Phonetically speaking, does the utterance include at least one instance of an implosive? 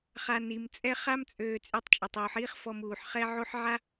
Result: no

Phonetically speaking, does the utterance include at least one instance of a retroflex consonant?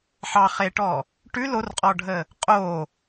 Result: yes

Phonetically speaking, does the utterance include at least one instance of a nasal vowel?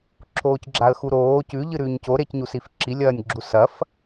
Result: no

